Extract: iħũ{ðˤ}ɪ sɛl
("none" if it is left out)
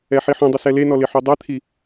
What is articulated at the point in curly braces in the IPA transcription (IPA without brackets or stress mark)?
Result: dˤ